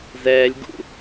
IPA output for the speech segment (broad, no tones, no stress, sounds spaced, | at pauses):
z ɛː lʲ ɡ ṵ